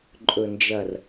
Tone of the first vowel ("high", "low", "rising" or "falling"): low